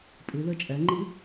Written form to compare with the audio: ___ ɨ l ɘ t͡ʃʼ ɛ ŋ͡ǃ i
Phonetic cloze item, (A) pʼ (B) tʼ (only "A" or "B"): A